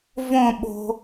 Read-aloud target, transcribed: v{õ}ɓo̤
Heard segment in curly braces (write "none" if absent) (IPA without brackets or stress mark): õ